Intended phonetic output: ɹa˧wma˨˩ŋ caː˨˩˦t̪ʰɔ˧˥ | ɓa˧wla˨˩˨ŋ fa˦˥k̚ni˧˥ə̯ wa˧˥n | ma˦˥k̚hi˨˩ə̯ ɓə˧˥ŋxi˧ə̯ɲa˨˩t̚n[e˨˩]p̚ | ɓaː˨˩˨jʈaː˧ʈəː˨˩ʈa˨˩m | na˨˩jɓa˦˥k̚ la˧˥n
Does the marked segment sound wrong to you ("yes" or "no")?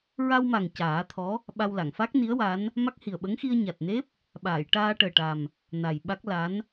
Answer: yes